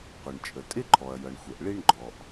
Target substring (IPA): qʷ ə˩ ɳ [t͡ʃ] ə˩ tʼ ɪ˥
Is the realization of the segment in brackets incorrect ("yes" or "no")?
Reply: yes